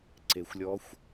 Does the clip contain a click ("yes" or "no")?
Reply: yes